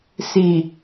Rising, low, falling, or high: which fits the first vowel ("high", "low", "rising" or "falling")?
low